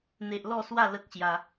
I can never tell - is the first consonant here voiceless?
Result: no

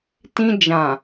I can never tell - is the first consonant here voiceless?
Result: yes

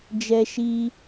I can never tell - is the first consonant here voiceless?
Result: no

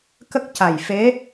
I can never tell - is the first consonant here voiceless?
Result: yes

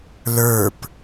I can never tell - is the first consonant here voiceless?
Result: no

